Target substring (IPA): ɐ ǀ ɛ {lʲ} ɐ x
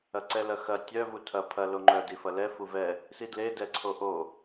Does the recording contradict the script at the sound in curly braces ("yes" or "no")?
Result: yes